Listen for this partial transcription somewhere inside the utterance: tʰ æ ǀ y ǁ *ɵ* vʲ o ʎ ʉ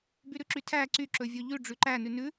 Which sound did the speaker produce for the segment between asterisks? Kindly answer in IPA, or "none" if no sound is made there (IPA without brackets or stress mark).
ɵ